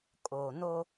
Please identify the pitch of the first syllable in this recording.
low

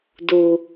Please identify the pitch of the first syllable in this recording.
low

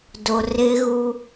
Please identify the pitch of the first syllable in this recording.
low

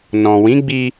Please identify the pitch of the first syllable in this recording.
low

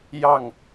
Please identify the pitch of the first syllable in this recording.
falling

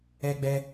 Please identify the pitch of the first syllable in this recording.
high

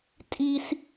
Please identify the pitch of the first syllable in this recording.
high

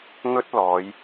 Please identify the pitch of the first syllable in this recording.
high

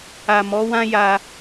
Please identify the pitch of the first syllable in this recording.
low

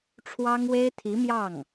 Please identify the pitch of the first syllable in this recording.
high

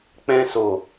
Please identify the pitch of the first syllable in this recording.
high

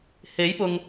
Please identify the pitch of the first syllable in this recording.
rising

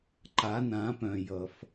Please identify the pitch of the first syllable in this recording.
rising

